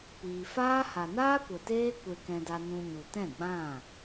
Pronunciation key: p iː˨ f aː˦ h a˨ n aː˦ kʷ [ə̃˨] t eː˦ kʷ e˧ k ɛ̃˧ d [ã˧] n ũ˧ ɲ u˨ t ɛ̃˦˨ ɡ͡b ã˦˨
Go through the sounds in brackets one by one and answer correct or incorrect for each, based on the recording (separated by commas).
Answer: incorrect, incorrect